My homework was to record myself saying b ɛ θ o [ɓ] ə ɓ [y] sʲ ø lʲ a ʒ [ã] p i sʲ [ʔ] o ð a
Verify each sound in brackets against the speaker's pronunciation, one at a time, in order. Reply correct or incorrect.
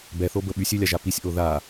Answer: incorrect, correct, incorrect, correct

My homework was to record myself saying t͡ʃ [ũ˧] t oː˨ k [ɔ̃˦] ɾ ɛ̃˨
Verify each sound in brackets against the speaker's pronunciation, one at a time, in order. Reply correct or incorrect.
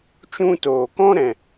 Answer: correct, correct

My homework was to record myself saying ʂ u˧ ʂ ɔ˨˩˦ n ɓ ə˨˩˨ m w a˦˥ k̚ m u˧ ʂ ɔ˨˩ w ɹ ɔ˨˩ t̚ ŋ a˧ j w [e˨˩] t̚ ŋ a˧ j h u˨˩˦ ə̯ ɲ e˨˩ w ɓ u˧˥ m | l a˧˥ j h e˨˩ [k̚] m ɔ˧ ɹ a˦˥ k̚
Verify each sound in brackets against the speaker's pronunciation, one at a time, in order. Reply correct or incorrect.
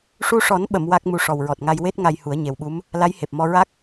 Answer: incorrect, incorrect

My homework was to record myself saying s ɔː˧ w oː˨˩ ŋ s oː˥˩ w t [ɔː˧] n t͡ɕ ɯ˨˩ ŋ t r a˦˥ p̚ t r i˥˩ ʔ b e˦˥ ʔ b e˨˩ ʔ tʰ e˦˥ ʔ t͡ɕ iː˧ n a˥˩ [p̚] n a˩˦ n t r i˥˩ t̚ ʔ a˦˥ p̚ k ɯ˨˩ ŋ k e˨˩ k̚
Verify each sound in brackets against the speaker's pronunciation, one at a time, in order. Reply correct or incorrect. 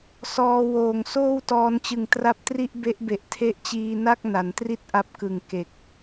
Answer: correct, incorrect

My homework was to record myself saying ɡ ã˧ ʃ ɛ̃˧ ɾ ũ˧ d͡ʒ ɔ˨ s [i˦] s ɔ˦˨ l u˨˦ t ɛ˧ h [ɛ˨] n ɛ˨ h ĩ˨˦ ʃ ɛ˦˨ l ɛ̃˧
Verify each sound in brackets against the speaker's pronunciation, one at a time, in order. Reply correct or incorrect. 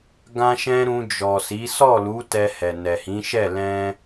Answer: incorrect, correct

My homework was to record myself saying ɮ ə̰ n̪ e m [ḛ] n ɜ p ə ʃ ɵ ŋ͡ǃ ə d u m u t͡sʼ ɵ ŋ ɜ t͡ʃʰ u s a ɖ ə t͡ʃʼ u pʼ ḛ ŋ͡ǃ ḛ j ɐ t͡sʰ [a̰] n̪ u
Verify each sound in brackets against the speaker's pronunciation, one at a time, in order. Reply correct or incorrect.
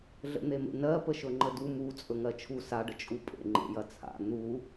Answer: correct, correct

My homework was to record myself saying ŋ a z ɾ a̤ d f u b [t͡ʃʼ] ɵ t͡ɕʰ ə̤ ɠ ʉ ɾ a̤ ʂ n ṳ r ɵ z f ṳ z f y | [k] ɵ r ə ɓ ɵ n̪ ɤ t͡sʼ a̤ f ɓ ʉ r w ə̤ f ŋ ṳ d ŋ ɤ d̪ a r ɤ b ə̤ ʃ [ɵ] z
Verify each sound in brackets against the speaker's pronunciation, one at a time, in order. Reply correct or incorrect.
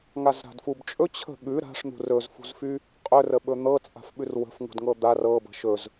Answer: correct, incorrect, correct

